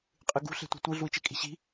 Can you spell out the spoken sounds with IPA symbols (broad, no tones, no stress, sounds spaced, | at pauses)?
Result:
qʼ ɨ ɡ ṳ ɬ e̤ tʷ i̤ tʷ ɨ ɮ u i̯ t͡ʃ e kʼ i̤ ɕ i̤